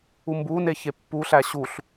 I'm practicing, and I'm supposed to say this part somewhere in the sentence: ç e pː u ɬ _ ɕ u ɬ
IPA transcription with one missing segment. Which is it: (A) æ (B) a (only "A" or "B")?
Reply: A